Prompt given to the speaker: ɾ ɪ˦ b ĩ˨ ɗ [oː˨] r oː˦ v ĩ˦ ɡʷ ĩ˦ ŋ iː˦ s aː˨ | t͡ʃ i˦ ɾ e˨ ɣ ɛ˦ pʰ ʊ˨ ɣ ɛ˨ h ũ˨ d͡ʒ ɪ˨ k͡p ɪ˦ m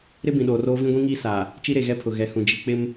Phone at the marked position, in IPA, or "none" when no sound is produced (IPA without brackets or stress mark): oː˨